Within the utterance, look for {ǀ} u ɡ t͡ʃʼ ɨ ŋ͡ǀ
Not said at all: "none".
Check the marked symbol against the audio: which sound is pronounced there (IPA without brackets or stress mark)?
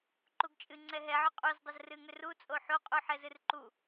ǃ